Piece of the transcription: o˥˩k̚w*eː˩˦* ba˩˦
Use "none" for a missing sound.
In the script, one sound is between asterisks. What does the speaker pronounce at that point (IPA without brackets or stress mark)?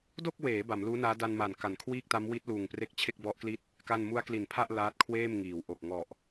eː˩˦